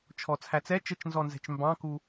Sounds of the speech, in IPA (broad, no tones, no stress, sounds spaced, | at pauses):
t͡ʃʰ ɔ t͡sʰ æ t͡s ɛ t͡ʃ ə t͡ʃ n z ɔ n z ɛ̤ t͡ʃ m b ɑ̃ k u